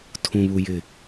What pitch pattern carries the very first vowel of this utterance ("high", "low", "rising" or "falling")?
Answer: low